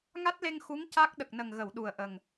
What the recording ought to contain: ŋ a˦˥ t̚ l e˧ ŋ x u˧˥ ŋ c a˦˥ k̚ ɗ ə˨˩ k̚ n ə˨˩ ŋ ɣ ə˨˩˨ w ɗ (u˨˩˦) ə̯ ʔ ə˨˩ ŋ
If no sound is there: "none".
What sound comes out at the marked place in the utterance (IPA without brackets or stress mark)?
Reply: u˨˩